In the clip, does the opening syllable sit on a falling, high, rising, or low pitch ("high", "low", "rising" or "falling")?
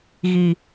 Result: low